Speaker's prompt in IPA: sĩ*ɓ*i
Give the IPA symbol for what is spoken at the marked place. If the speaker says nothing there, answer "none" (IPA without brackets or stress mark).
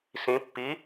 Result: pː